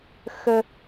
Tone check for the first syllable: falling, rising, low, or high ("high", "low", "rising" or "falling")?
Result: high